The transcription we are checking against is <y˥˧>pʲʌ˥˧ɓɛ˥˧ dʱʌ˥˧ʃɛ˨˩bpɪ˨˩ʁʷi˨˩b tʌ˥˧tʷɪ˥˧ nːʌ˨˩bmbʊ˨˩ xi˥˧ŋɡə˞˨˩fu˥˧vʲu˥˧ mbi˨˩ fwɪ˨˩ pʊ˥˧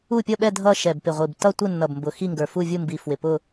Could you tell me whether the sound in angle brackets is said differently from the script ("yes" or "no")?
yes